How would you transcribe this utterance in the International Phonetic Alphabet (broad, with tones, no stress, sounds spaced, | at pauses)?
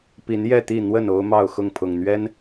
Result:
p i˨˦ n j ɛ˥˨ t̪ i˥˨ n̪ w ə˥˨ n o˦ ʊ̯ m ɑ˥˨ ʊ̯ x ʊ˥˨ ŋ pʰ ʊ˨˩ ŋ n̪ ɥ ɛ˦ n